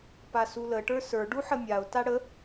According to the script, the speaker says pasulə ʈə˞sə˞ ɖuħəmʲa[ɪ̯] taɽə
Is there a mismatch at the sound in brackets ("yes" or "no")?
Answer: yes